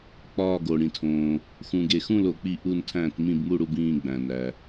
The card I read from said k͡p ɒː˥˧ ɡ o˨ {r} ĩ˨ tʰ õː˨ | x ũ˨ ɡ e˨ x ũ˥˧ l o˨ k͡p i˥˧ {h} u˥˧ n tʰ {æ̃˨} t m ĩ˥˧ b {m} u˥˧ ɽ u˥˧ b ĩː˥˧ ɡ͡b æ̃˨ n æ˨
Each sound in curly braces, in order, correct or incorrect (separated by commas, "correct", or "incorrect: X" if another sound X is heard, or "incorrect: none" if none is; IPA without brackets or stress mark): incorrect: ɽ, incorrect: ʔ, incorrect: æ̃˥˧, correct